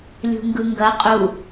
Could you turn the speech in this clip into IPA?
lʲṳŋɡɯŋɡɐ qʼu

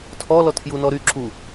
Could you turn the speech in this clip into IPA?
tʰɔ lɔtʰju nɔɾy ǁu

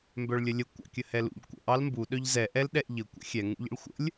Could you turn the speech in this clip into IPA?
mbœɭlʲəlʲə kʷɑ̰kʲəhɛlṵʎ kʷə̰ʔ ɑlmbu ɗœʎzɛ ʔɛlɗɛʔʎə kʷə̰xʲɛ ŋṵʎə̰ɭxʷə̰lʲ

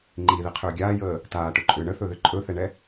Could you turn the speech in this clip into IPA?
ŋ͡ǃiðiqʰʏː ɡʲaːjəː | taːʈɵǃʼʏː ɳəθɵðʏ ǃʼɵθɛɳɛ

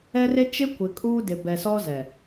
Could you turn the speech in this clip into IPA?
ɛ˦re˦ t͡ʃɪ˦kʷɪ˨kʼuː˦ dɪ˨bɛ˨sɔ˦zɛ˨

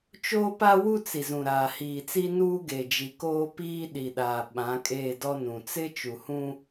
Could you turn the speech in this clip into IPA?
t͡ʃoː˦pa˦wu˦t͡si˨ zũ˨ɾaː˨hiː˨t͡si˦ nuː˦ɡe˨d͡ʒi˨koː˦ piː˦ɗi˨ɗaː˨ɓã˨˦ kʼeː˦˨dɔ˦nũ˨ t͡sɪ˦ t͡ʃu˨hũ˦

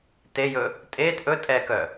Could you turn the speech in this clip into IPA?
tejɵ | tʼeːt ʔɵ tʼɛkœ

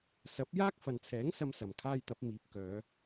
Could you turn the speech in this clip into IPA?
sɐ˨˥p̚ jaː˥k̚fɐ˨nt͡sʰɛː˨˥ŋ sɐ˥msɐ˨˩mkʰaː˥jt̪ɐ˨˥p̚ miː˨˥p̚kœː˨˧

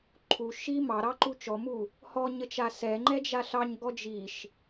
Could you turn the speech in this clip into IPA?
ǃʰu ʃi mɑɾɑǃu t͡ʃɔmu | hɔɲət͡ʃa sɛŋ͡ǃɛd͡ʒa ɬɑɲɡɔ d͡ʒiʃ

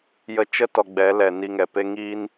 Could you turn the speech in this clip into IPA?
jə˧t͡ʃə˦tɔ˨ ɡ͡bɛ˨˦lɛ˨ ni˧ŋɛ˨pe˦ ŋiː˦n

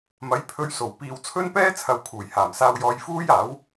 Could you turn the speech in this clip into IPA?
mɐ˨˥jpʰɵ˧ɥso˨˩w piː˨wt͡sʰɵ˥npɛː˥t͡sʰɐ˨w kʰuː˨˩jhaː˨˩msaː˧wjɔː˧j fuː˥jaː˨˥w

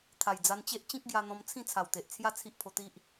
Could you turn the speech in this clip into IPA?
t̪ʰa˨˩jd͡za˧nt͡ɕe˦ʔ t͡ɕĩ˦k̚ɡja˧n̪ɔ̃˧m t͡sʰĩ˥˧t͡sʰa˨˩wt̪e˨ʔt͡sʰja˥˧ t͡sʰi˦ʔpʰo˧t̪i˦ʔ

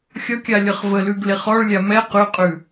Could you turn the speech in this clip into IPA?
xʲʌkʲa lʲʌχvəlʉɡ leχɔɭlʲa mɛ qʉqʼʉ

